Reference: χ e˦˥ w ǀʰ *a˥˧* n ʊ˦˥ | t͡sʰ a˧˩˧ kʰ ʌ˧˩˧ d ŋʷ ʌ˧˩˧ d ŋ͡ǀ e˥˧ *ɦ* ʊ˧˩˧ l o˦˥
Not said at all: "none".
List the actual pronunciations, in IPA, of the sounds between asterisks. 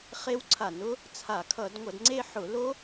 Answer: a˧˩˧, ħ

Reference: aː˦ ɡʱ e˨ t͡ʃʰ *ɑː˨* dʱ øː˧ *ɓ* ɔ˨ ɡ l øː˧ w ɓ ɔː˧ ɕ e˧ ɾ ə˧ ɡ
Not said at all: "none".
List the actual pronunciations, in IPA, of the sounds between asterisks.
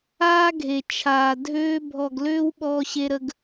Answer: aː˨, bʱ

